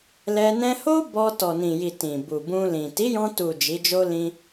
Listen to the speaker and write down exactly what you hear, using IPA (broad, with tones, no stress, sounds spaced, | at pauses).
l ɛ˧ n ɛ̃˧ h o˦ b ɔ˧ t ɔ˨ n ĩ˨ j i˨ t ĩ˨ b u˨ b ũ˧ l ĩ˨ t i˨˦ j ɔ̃˧ t u˨ d͡ʒ i˨˦ d͡ʒ o˦ l ĩ˧